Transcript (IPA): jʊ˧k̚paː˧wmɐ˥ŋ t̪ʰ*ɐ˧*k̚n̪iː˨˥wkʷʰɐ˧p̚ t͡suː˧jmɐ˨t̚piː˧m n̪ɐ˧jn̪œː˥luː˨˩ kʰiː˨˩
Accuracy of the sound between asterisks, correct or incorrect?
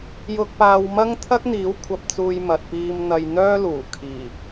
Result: incorrect